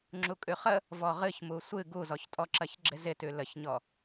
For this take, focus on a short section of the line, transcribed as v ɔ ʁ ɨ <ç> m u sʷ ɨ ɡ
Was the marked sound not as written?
no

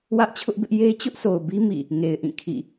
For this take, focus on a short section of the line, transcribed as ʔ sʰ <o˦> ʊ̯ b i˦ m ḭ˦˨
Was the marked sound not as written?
yes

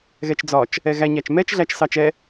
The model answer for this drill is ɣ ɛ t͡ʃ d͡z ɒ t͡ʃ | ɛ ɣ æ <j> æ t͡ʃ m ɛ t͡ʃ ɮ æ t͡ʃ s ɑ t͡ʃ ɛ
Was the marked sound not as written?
yes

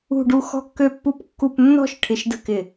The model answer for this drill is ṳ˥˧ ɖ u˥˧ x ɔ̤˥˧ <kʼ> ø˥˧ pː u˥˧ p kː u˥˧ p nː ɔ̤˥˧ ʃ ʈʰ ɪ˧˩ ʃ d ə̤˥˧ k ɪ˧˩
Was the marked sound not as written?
yes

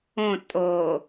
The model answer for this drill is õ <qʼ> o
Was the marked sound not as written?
yes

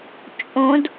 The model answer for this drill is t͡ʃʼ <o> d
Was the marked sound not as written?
yes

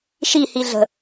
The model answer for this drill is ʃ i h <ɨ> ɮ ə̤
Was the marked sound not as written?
yes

